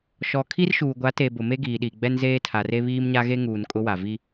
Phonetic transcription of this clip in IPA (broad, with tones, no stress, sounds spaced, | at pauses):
ʃ ɔ˨ kʰ i˦ r ʃ uː˨ ɡʷ a˨˦ t e˨ b ʊ˨ m e˦ ɡ iː˨ ɗ i˨ ɡ͡b ɛ˦ n z eː˦ tʰ a˨ r e˦ β iː˦ m ɲ a˦ ɣ e˦ ŋ uː˨ n kʼ ʊ˦ w a˨ v i˦